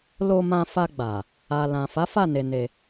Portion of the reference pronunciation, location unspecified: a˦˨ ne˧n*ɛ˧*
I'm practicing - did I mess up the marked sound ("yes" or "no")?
yes